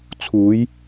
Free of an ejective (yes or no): yes